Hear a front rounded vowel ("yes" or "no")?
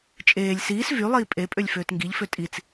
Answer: yes